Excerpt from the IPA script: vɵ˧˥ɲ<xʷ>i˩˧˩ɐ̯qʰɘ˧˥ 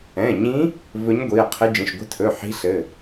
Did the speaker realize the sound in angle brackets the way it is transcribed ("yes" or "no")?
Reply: no